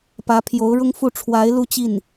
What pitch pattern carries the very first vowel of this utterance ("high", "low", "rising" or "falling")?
rising